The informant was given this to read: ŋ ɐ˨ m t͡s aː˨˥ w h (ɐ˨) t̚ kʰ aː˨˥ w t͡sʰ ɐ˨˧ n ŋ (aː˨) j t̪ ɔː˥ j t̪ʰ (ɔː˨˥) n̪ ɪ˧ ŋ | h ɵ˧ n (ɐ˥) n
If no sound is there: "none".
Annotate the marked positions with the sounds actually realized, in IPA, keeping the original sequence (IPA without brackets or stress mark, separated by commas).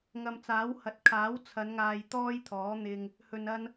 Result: ɐ˨, aː˨, ɔː˨˥, ɐ˥